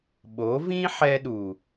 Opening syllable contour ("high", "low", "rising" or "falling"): rising